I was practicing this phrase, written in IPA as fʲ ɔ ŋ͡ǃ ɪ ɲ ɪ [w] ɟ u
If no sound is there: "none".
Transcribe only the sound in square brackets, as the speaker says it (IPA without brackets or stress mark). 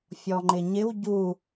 w